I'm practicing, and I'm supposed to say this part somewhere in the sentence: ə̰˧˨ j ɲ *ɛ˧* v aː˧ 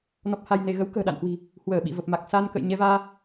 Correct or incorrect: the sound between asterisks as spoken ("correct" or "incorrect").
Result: correct